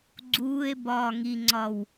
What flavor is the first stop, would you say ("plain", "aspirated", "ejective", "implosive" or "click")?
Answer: click